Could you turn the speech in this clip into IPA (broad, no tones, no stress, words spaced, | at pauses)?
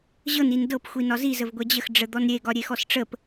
ʑɤn indɤp xʷinɒzi zəvɡʷɛd͡ʑəx ɖ͡ʐəd̪ɔnɾʲe ɡɒɾʲexɔsʈ͡ʂəp